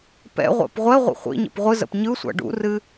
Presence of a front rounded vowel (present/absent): absent